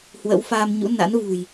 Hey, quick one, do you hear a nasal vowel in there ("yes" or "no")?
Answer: no